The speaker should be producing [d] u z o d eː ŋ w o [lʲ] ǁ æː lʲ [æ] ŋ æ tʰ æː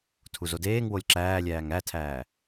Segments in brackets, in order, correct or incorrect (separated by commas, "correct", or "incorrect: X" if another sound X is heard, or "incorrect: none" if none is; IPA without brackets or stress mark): incorrect: tʰ, correct, incorrect: æː